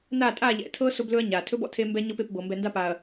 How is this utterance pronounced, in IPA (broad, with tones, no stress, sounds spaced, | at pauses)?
n a˦˨ tʼ a˦˨ ʎ ɛ̰˨ tʰ ɤ˦ s o˦ b l ɵ˦ ɐ̯ ɲ a˨ tʰ ɵ˦ b ɔ̰˨ tʰ e˦ m b ɛ˦ ɲ ɤ˦ p e˦˨ p b ɤ˨ m b ɛ˨ n d a˦ p a˨ ɐ̯